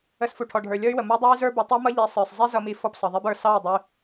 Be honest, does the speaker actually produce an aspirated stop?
yes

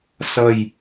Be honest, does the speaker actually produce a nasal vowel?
no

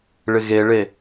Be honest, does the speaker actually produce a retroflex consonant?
yes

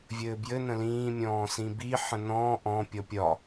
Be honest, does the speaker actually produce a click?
no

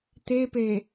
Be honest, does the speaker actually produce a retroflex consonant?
no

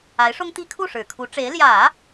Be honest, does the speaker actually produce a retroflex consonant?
yes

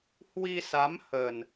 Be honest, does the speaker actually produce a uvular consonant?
no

